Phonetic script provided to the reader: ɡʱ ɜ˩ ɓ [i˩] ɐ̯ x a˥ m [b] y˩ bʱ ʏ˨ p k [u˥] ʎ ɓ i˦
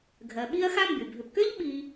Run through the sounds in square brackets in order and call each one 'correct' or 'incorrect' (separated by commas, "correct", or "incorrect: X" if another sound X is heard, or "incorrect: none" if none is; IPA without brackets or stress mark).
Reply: incorrect: i˦, correct, incorrect: ʏ˥